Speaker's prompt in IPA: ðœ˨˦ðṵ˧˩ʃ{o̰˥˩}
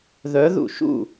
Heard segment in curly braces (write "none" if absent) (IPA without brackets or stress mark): ṵ˥˩